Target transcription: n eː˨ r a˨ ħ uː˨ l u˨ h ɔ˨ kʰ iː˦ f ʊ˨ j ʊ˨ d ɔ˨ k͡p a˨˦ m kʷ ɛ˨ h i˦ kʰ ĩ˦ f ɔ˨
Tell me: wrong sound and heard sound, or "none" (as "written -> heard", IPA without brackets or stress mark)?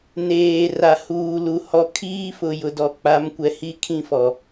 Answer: ħ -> h